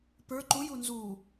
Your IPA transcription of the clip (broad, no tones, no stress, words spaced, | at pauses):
pə˞ ǃuju nzu